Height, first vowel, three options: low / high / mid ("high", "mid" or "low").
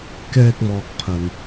mid